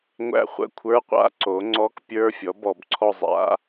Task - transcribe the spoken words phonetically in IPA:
ŋʷ æ̰˦˨ χʷ ə̰˧˥˧ kʷʰ ə˞˧˥˧ qʷ a̰˧˥˧ ǀ o˩˥ ŋ͡ǀ ɔ˦˥ k pʲ ə˞˧˥˧ fʲ ɔ˩˥ b ɔ˧˩˧ b ǀʰ ɔ˦˨ zˤ a̰˦˥

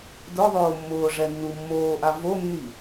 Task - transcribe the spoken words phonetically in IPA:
d ʊ ðˤ oː mː ʊː ʐ ɛ nː u mː oː ʔ a v o nː i

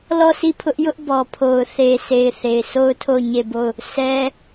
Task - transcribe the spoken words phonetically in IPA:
l ɔ˦˨ sʰ i˦˨ pʰ ʊ˦ ʔ j ʊ˦ ʔ b ɔ˨ pʰ o˨ ʊ̯ θ e˨ sʰ e˨ ɪ̯ θ e˨ ɪ̯ sʰ o˦ ʊ̯ tʰ o˦˨ ʊ̯ ɲ e˦˨ b o˦˨ ʊ̯ | sʰ ɛ˦

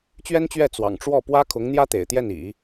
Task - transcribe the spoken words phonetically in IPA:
t͡ɕ ɥ ɛ˥ n t͡ɕ ɥ ɛ˥˩ t͡s w ɑ̰˨˩ ŋ ʈ͡ʂ w ɔ˥˩ p w ä˥ kʰ ʊ˧˥ ŋ n̪ j ä˥ t̪ ḛ˨˩ ɪ̯ t̪ j ɛ˥˩ n ḭ˨˩˦

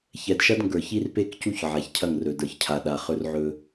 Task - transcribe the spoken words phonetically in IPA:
ç ɛ˨ d ʃ ɐ˦ d ŋ ɡ ə˞˨ ç i˦ r p e˦ k c u˦ ç ʕ a˨ ç cʰ ɐ˦˨ ŋ r ɵ˨ d ə˞˨ ç cʰ a˨ ɗ a˨ χ ɵ˦ r ʕ ɵ˦

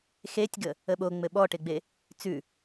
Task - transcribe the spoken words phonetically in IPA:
x e tʲ ɡ ə | ə ɓ o ŋ͡m ɘ ɓ ɔ ʈ e ɡ͡b e | t͡s ʉ

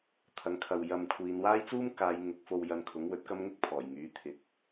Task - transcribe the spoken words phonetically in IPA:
t̪ʰ ɐ˨˥ ŋ kʰ ɐ˨ w j ɐ˧ m kʷʰ iː˨˧ n w aː˥ j t͡s uː˥ m k aː˨˧ j ŋ ʊ˨˥ k̚ f o˧ w j ɐ˧ n kʰ ʊ˨˥ ŋ w ɵ˨˥ t̚ k ɐ˥ m ŋ ɪ˥ k̚ pʰ ɔː˨˩ j ŋ yː˨˥ t̪ʰ ɪ˨˥ k̚

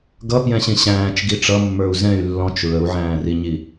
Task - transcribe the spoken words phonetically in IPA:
ɡ ʌ p j ɛ̃ ɕ ĩ ɕ æ̃ː t͡ʃ ɡ i ʈ͡ʂ ʌ mː ə˞ u̯ z ɛ̃ y̯ lː ɔ̃ t͡ʃ ɹ ə u̯ ʕ æ̃ː r i ɲ i

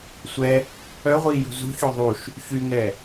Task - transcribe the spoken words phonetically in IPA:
sʷ ɛ | œ ʁʷ iː j ṳ z ṳ ç o ðˤ u ʃ | ç y ŋ ɛ

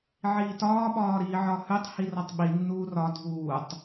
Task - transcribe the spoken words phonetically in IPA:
ʕ iː t ɒː ɓ ɒː ɾ iː ʕ ɒ h ʉ tˤ h i r ɒ tˤ ɓ i nː uː r ɒ dʱ uː tˤ

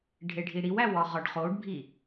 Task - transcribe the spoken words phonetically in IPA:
ɖʱ e ɖʱ i ɽ i w æ w ɒ ʁ ɒ ɖ χ o ɖ bʱ i

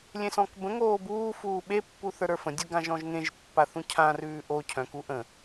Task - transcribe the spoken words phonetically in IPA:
lʲ ẽ s ɔ̃ k b ə̃ ŋ oː b uː f uː ɓ e pː u θ ə˞ ɾ ə˞ f ə̃ dʲ u ɡ ã ʒ ɔ̃ ʒ ŋ ẽ ʒ pː a θ ũ cʰ ã r ʉː ʔ o cʰ œ̃ k u ʔ ə̃

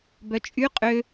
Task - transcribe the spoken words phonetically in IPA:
b œ t͡ʃʼ y qʼ ø

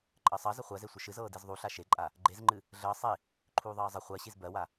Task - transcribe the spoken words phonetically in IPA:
ǃʼ ɜ sˤ ɜ z ə χʷ ɜ z e sʷ ə ʃ ɨ z ɤː d i z ðˤ u ɬ a ʃ e ǃʼ a | ɡ͡ǃ e z ŋ͡ǃ ɨ | ɮ əː sˤ i | ǃʰ uː ðˤ ɜː zˤ ə χʷ ɜ ɕ i z b ɜ w a

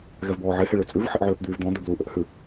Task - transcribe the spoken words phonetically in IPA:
ɣ ɛ v b ɔː ʕ e h e ɭ ø t͡sʼ ʉ v ħ e ʔ ʕ øː p d̪ yː v d̪ ɔ̃ d̪ ɛ b l u ʔ ø ʔ h ʉ

